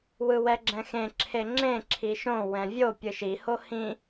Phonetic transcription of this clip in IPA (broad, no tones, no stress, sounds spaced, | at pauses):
w ɯ w ɛ ɡ͡ǁ ɛ̃ x ẽ ǁʰ e ŋ͡ǁ ẽ ǁʰ i ʃ õ w ɛ̃ vʲ o pʲ ɯ ʃ i h o h ĩ